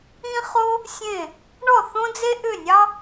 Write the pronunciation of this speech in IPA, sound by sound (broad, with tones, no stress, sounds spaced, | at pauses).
ĩ˥ χ o˥ | sʲ ẽ˥˩ | ɳ ɔ˥˩ θ õ˥ d͡z e˥ ʔ ʏ˥˩ nʲ ɑ˥